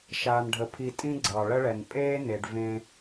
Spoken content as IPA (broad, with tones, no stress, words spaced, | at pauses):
ʃaː˨nɖʱə˨pʰi˨ tʼĩ˦ɡ͡ǀɑ˨ ɭə˦ɭɛ˨n pʼeː˦ ne˨ɖvẽ˦